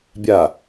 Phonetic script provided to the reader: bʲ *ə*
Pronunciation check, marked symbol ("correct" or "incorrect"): incorrect